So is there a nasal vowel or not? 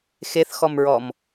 no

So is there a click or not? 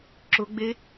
yes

